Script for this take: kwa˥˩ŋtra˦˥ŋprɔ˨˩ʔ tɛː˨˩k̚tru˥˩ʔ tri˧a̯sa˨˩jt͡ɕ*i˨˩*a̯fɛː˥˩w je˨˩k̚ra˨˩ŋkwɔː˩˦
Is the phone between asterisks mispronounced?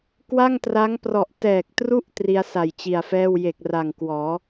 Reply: no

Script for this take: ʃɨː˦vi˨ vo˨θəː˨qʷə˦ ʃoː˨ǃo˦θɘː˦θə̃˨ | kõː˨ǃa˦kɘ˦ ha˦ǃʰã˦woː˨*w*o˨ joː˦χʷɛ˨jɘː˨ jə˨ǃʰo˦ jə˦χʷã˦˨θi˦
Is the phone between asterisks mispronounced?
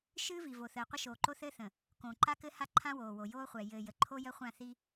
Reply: no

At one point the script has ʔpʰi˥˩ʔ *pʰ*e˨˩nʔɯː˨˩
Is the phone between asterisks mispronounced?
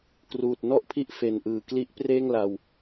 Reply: yes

